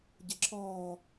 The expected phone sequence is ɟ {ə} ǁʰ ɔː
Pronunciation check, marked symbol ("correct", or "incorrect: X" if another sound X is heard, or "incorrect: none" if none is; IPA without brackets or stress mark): correct